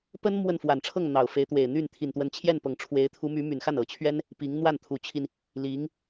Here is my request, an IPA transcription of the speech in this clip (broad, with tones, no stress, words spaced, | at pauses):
pə˥n mwə˥˩nfwa˨˩nʈ͡ʂʰɤ˥˩ŋ n̪ɑ˨˩ʊ̯fe˧˥ɪ̯t̪we˨˩ɪ̯ n̪y˥˩n t̪ʰi˨˩nt̪wə˧˥nt͡ɕʰjɛ˥˩npɤ˨˩ŋ ʈ͡ʂʰwe˧˥ɪ̯t̪ʰu˧˥my˧˥ my˨˩nxa˥˩nɤ˨˩t͡ɕʰɥɛ˥n | pi˧˥ŋ n̪wa˥˩nt̪ʰu˧˥t͡ɕʰi˧n | li˧˥ŋ